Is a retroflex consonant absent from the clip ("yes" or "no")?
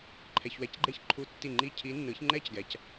yes